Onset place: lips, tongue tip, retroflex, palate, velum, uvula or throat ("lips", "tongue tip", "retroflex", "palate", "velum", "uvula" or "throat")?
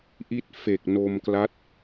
throat